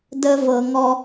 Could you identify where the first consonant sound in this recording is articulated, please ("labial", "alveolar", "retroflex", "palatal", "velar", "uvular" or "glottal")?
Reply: alveolar